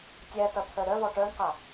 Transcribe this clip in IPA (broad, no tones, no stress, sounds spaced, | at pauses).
tʲ æ t ɐ t̪ʰ œ ɾ œ v ɔ ʈ œ ɳ q a